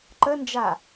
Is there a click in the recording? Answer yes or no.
yes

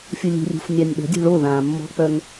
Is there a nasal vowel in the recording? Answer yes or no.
yes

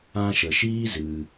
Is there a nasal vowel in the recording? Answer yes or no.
yes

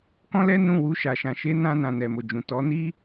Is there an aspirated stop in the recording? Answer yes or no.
no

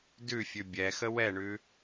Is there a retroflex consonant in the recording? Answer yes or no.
yes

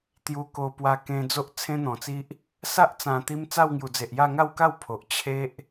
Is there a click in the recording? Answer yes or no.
no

